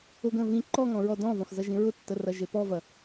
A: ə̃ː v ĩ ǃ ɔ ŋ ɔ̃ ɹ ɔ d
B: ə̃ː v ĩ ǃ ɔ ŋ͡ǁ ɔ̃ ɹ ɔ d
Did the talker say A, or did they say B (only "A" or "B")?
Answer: A